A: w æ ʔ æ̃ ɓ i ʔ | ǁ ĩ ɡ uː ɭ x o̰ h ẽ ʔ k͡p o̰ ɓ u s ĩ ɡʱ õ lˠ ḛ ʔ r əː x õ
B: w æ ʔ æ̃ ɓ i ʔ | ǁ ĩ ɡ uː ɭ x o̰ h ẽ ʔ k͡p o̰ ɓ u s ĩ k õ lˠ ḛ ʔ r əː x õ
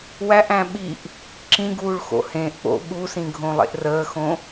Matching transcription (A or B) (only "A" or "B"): A